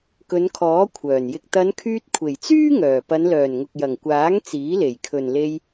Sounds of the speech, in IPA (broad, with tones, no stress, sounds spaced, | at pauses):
k ɵ˨˧ n kʰ ɔː˨˥ kʷʰ œː˨˩ n j ɪ˧ k̚ t̪ ɐ˨˧ n kʰ yː˧ t̚ kʷʰ e˨˩ j t͡s yː˥ ŋ œː˨˩ p ɐ˨˧ n l œː˨˩ n ŋ ʊ˨ k̚ j ɐ˨˩ ŋ kʷ aː˨˥ ŋ t͡s iː˨˥ l e˨˩ j kʰ ɵ˨ n l e˧ j